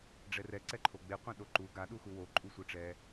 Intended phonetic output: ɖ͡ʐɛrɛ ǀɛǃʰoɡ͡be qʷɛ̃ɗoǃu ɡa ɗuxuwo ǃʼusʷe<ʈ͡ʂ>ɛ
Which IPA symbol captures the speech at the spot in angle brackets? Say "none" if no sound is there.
ʈ͡ʂ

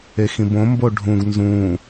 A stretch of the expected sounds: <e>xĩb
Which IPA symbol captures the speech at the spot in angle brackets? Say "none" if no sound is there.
e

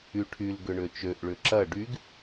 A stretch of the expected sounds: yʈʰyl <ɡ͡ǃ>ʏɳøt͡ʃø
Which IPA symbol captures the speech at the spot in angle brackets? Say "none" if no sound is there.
ɡ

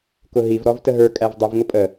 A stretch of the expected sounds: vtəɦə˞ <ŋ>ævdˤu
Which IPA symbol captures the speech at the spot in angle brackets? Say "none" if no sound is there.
kʼ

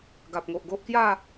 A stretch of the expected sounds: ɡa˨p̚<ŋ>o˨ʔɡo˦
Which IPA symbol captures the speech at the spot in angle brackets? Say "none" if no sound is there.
ŋ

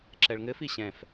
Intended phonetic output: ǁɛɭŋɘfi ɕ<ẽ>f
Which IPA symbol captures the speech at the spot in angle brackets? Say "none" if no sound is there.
ɛ̃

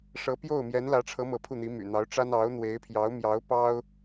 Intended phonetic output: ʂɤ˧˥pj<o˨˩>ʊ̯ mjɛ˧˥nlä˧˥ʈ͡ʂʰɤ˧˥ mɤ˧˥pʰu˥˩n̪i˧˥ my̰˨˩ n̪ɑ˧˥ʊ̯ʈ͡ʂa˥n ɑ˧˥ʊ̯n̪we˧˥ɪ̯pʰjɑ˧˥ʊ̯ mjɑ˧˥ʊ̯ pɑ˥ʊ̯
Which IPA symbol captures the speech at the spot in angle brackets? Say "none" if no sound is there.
o˥˩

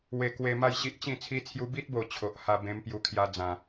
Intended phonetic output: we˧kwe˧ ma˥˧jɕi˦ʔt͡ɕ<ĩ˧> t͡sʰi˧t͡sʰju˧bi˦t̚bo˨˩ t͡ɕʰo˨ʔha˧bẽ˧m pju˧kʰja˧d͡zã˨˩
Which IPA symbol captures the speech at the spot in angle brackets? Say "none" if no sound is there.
ĩ˥˧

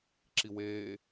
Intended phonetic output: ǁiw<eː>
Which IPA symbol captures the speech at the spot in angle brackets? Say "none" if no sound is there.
eː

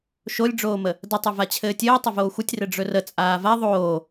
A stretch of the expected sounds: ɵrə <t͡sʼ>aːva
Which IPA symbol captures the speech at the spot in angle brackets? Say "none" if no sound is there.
t͡sʼ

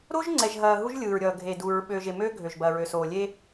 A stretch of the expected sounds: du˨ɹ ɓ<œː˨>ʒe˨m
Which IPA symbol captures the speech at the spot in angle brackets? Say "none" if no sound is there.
øː˨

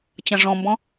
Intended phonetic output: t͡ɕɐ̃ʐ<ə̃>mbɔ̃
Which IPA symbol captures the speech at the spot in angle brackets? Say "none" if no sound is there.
ɔ̃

